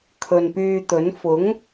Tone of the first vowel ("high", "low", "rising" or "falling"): low